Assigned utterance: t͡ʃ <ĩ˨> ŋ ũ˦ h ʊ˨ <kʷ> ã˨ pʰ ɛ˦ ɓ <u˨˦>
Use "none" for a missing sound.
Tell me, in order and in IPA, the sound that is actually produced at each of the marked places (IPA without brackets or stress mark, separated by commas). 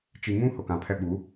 i˨, k, u˨˦